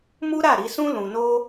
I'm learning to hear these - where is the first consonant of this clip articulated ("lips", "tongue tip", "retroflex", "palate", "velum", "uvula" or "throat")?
lips